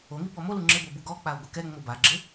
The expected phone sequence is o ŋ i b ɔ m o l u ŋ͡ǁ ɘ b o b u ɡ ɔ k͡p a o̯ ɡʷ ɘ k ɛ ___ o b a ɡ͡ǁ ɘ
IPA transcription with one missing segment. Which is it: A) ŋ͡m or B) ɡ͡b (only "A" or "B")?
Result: A